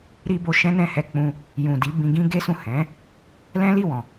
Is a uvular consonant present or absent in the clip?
absent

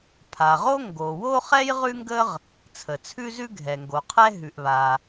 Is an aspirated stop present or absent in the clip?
present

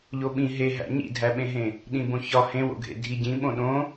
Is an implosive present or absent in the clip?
present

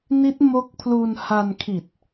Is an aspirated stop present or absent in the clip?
present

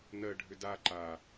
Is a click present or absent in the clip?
present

